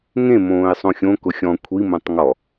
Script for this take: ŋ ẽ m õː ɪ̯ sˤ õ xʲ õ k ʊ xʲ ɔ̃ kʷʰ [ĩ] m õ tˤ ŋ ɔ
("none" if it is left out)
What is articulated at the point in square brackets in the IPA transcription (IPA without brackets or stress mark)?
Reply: i